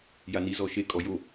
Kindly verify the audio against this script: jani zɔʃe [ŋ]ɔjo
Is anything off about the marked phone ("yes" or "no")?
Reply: yes